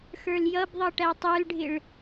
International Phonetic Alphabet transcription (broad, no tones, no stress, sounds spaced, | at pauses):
x ə˞ l j ʌ b ðˤ ʌ ʈ æ tˤ ə˞ l ɖʱ ɪ ɭ